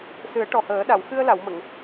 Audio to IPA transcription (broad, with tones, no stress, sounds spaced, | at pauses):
s ɨ˨˩˦ ə̯ ʈ ɔ˨˩ h əː˨˩˦ ɗ a˨˩˨ w x ɨ˧ ə̯ l a˨˩˨ w m ə˨˩˨ ŋ